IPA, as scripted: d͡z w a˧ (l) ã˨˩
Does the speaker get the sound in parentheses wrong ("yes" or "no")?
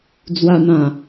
yes